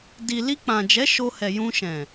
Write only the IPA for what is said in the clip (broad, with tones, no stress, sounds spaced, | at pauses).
d i˨ l i˧ k͡p ã˨ d͡ʒ ɛ˨˦ ʃ o˧ h ɛ˨ j ũ˧ ʃ ɛ̃˨